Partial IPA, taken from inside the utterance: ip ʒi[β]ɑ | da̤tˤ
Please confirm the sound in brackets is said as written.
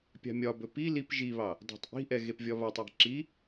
yes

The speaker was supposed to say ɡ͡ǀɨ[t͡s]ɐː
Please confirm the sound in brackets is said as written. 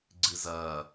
no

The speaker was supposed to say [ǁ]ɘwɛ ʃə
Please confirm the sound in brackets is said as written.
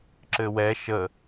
yes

